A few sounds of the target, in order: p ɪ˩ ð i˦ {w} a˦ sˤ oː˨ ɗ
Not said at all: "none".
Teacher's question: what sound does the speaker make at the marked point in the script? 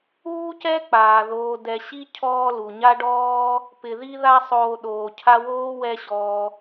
ð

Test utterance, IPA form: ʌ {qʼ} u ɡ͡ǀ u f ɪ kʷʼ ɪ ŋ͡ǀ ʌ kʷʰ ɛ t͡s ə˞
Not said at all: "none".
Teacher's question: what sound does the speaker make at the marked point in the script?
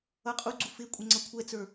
qʼ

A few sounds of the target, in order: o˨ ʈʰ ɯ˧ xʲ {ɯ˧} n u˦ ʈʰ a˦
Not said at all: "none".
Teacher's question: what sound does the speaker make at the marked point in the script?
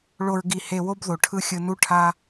ɯ˧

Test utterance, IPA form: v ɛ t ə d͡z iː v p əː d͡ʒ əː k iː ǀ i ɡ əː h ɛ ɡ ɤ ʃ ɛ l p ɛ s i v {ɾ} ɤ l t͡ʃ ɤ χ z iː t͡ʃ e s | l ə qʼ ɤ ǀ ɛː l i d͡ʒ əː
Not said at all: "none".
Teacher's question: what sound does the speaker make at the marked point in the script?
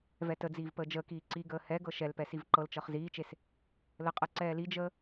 ǃ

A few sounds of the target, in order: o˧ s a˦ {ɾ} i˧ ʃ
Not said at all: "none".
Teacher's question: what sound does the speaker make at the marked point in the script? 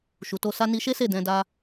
n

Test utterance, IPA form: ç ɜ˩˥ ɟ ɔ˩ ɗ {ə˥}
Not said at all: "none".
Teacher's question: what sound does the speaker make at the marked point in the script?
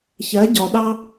ɑ˥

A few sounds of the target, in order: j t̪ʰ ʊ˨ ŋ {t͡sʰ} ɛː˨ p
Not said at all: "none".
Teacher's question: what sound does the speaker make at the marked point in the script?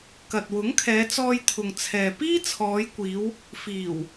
t͡sʰ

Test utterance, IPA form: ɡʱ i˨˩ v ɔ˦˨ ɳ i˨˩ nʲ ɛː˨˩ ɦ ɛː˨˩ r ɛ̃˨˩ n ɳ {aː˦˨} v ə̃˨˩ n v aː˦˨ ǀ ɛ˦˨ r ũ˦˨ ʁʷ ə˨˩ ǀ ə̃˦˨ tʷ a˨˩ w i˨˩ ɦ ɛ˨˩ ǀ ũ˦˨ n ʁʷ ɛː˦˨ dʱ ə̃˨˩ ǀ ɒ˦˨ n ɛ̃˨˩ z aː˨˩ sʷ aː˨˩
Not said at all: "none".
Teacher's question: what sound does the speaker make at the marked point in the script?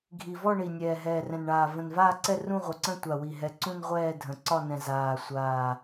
aː˨˩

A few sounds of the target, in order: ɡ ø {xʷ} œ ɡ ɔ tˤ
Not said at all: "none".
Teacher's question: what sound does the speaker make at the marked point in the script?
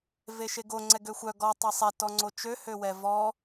xʷ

